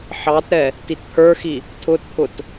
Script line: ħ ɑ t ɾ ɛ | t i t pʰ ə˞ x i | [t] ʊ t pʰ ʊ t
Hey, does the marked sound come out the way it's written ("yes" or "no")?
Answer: no